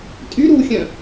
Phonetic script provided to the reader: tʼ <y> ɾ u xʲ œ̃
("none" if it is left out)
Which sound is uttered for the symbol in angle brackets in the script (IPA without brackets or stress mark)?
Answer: y